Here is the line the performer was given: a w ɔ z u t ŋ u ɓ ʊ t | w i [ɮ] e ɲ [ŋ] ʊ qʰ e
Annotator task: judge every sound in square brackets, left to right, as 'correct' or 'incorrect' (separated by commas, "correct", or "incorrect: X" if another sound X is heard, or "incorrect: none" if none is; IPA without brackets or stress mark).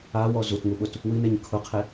incorrect: n̪, incorrect: kʰ